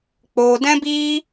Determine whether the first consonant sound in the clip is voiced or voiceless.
voiceless